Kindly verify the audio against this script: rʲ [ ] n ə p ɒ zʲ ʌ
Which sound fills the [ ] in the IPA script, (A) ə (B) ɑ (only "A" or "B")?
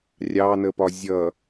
B